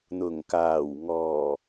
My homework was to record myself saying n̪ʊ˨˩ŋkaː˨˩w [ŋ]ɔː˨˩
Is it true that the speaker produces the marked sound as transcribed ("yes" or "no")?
yes